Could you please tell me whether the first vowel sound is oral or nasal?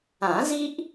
nasal